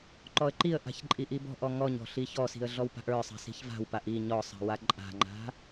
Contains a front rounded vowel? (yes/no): no